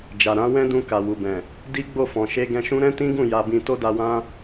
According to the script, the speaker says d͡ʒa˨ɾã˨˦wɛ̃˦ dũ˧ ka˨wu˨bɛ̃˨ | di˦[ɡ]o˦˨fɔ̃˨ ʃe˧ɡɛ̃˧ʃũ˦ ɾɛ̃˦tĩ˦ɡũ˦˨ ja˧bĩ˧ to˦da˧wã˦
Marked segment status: incorrect: ɡ͡b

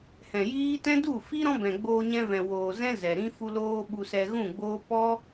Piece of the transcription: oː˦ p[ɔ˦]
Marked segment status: correct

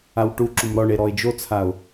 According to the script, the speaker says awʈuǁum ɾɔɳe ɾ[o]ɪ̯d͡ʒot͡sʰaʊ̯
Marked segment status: incorrect: ɔ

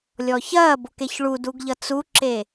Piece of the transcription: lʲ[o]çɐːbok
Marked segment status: incorrect: ɔ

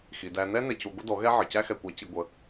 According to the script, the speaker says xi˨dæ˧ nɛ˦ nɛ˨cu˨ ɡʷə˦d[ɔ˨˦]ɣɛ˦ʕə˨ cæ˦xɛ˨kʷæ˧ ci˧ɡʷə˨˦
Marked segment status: correct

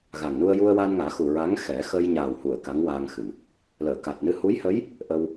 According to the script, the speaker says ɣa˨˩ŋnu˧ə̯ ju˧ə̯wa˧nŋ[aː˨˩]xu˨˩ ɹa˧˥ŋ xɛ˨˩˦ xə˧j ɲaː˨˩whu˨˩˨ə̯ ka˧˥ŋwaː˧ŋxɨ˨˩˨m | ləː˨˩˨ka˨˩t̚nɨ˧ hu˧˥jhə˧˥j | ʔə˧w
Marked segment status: incorrect: aː˨˩˦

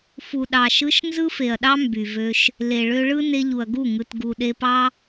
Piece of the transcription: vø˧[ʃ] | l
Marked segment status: correct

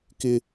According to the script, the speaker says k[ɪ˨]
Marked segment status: incorrect: ɪ˦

